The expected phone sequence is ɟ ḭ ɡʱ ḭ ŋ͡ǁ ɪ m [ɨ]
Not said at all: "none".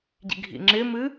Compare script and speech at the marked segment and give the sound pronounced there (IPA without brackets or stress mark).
ɨ